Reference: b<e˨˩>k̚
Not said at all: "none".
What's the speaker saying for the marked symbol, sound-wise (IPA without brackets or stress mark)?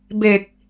e˨˩